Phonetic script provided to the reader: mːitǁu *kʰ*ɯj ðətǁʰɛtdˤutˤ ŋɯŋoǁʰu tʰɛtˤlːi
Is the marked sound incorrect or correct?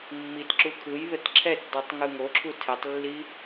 correct